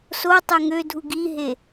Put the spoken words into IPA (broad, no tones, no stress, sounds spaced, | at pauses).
s o tˤ ø ŋ ø dʱ u ɡ i ɦ e